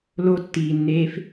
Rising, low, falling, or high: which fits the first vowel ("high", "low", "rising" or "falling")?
high